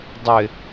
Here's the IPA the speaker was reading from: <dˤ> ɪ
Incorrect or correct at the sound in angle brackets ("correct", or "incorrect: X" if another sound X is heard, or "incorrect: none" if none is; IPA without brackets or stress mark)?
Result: correct